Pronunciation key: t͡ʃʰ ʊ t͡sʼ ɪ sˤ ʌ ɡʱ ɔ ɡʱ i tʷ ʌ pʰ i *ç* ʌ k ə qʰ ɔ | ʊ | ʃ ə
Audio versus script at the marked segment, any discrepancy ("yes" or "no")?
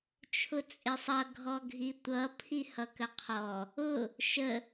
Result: yes